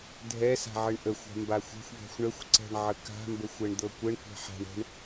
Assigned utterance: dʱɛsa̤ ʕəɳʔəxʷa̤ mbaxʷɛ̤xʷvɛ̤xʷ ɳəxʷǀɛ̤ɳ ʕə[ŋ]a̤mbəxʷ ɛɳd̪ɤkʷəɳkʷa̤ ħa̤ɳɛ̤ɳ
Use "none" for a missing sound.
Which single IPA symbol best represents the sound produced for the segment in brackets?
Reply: k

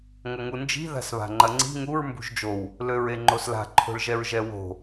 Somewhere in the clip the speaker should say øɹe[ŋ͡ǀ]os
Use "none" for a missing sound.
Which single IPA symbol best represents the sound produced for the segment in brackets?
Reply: ŋ͡ǃ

